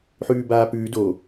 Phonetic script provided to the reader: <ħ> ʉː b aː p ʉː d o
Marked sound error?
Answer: no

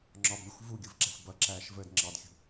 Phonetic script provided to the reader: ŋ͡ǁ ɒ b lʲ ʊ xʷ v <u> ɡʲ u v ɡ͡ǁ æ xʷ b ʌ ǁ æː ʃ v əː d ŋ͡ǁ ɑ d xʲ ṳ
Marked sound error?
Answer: no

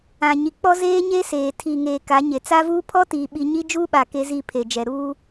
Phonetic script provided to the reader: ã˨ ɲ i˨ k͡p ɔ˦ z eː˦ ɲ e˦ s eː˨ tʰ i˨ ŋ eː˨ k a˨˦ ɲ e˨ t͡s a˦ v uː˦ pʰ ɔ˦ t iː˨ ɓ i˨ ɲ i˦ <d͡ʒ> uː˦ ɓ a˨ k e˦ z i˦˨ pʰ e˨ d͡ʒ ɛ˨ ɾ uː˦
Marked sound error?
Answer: no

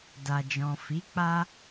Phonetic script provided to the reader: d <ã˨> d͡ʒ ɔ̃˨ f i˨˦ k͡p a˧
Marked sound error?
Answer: yes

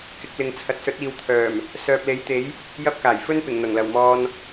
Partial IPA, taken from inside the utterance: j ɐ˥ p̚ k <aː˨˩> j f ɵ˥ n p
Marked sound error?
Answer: no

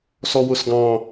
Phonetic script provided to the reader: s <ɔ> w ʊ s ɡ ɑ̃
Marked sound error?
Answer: no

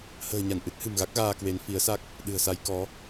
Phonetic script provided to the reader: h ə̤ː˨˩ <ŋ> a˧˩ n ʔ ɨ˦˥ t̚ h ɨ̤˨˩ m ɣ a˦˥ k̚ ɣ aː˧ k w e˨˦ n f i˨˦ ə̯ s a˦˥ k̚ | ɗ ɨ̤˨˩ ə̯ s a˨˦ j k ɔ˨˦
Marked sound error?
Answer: yes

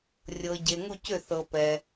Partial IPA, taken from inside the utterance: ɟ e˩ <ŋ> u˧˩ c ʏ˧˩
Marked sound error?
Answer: no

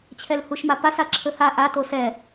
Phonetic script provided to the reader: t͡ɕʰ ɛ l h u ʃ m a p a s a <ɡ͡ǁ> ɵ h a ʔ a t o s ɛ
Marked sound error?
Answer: yes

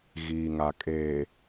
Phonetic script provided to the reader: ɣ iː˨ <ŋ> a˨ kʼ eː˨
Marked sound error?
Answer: no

